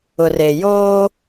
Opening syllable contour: low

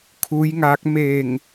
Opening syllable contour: rising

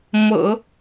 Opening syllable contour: low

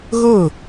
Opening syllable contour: falling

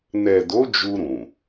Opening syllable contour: low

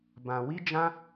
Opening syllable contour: low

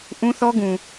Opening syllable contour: high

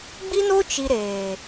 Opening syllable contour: high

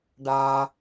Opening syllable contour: high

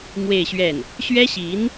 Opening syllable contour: falling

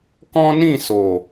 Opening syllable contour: high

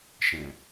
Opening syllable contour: low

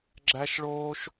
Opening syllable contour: high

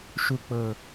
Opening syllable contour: low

